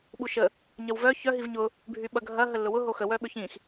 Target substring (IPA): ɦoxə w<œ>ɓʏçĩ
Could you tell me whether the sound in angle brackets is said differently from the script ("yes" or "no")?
no